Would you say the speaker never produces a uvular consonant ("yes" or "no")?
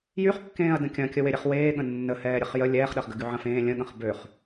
no